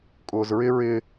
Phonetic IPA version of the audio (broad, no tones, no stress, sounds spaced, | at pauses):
kʼ ʊː z ɹ ɪ ɹ ɪ